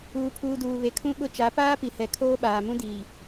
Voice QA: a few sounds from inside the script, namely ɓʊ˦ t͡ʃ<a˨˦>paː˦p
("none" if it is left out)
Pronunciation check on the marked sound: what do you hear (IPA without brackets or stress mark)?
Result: a˨˦